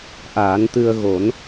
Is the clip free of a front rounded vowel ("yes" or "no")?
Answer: yes